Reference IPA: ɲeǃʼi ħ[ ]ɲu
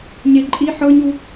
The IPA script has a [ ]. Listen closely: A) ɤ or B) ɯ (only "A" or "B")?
A